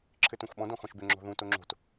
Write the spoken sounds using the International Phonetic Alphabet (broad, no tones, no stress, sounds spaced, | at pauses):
ǁʰ ɘ t ũ x ɓ ɔ̃ d ɔ̃ x ɔ̃ ʃ b ʏ ŋ͡ǁ ɔ̤ ð ũ t o ŋ͡ǁ o̤ t